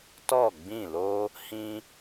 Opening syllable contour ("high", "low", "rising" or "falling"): falling